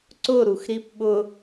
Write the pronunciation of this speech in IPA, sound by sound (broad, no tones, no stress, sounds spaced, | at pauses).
ǀ ʊ ɾ u x ɾ i p ɓ ʊ